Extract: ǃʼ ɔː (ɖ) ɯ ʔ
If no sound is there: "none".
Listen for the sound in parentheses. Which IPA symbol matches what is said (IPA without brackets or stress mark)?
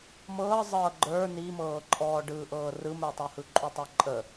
ɖ